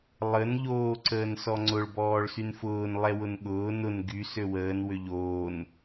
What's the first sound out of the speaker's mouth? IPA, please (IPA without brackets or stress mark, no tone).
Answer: lˠ